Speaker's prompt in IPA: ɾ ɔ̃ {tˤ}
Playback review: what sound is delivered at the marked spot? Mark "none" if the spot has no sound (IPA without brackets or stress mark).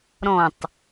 tˤ